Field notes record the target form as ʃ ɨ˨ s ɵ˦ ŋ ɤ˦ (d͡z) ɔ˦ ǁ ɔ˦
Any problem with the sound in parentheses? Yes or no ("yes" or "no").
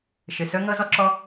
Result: yes